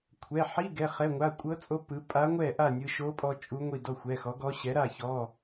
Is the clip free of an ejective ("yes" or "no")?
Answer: no